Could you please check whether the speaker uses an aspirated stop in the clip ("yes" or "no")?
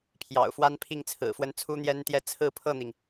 yes